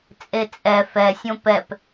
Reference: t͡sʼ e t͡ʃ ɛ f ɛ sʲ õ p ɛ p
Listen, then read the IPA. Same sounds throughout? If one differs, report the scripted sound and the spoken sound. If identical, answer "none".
t͡ʃ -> t͡sʼ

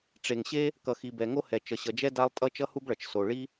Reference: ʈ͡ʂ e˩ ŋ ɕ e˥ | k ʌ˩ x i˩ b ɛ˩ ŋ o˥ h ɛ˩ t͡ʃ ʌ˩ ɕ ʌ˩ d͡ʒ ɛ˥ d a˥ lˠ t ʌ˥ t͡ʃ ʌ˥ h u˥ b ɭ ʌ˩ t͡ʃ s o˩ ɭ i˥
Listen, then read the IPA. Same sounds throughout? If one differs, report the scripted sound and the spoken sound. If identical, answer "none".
t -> tʼ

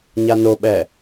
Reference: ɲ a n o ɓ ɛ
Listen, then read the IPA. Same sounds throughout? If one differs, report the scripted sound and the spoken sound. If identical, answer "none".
none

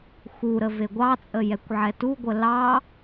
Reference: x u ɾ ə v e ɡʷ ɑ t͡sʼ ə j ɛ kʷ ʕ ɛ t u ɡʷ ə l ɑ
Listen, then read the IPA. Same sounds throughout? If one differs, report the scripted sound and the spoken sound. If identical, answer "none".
none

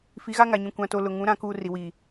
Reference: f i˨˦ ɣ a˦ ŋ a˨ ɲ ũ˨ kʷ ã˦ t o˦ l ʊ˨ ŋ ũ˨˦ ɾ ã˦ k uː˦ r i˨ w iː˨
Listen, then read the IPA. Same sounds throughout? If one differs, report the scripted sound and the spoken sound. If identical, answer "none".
none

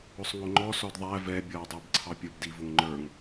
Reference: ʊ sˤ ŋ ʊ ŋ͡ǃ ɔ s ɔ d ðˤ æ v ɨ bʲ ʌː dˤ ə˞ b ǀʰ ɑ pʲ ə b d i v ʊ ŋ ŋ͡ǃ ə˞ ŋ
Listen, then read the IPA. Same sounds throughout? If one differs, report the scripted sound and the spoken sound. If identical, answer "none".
ɨ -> ɛ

